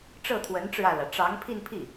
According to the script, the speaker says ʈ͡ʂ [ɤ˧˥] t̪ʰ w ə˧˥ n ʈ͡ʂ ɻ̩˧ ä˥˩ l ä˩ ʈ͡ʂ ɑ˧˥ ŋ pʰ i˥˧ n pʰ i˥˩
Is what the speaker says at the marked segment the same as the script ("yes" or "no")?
no